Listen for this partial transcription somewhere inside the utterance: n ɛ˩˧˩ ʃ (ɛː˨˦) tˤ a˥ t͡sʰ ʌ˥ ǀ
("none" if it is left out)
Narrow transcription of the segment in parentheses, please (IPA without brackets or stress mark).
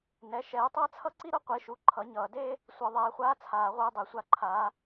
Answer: ɛː˨˦